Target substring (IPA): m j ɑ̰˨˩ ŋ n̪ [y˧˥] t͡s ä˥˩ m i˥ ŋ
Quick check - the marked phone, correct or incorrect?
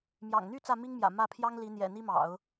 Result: incorrect